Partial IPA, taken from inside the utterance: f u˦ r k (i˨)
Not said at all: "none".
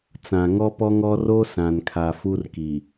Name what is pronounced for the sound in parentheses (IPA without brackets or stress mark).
i˨